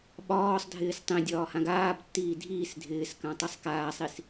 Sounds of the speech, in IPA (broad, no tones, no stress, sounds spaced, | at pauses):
ɓ ɒː sˤ dʱ ɪː s tˤ ĩ dʲ ɒː h ã ɡ aː b tː iː dʱ iː s dʱ ɪː s k ã tˤ i sˤ k aː sˤ i s